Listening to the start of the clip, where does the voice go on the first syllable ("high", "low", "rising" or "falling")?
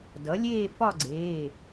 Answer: rising